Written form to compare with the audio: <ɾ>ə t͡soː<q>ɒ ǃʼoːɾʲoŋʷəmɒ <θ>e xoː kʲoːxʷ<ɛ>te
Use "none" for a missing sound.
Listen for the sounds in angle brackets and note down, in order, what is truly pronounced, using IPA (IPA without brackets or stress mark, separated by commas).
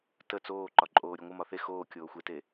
t, ǃ, θ, e